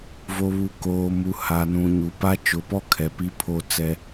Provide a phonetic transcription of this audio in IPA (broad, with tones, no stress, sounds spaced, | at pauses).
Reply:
v o˨ β u˨ k oː˨ m u˨ h a˨ n ũ˨ ɲ u˨ p a˦ t͡ʃ ʊ˨˦ p ɔ˦ kʰ ɛ˨ p i˦ pʰ o˦ t͡s ɛ˦